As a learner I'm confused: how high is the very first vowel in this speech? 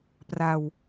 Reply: low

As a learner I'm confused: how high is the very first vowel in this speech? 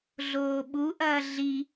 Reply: mid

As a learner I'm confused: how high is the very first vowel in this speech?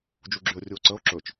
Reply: high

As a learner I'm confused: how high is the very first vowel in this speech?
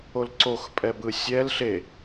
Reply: mid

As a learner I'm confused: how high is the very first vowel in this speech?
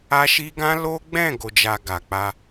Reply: low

